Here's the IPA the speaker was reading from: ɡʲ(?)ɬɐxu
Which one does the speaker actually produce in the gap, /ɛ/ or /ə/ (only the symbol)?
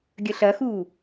ə